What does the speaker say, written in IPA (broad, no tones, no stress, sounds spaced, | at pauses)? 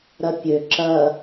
ɾ ɐ pʲ ø ǁ ɐ